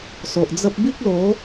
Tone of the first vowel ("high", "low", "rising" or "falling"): low